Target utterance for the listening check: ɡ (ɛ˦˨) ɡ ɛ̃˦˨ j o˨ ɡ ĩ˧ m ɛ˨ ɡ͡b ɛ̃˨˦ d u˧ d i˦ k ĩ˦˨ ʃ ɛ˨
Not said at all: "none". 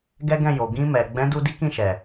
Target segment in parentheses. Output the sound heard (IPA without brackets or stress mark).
ɛ˦